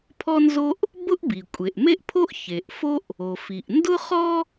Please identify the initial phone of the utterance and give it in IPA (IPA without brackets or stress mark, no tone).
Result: pʰ